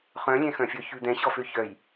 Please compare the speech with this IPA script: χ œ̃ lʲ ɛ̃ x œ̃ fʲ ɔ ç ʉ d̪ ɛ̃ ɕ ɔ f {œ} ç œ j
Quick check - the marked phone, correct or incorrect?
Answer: incorrect